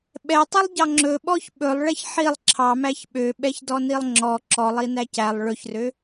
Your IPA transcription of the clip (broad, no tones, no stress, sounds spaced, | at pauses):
ɓ ɛ tˤ i lˠ ɟ ɑ ŋ͡ǁ ɵ ɓ ɔ ç ɓ ɵ lˠ ɭ ɛ ç ħ i lˠ ǁʰ ɑ m æ ç ɓ ø ɓ ɛ ç d ɔ n i lˠ ŋ͡ǁ ɔ ǁ ɔ lˠ i n æ c æ lˠ ɭ ɵ ç r ø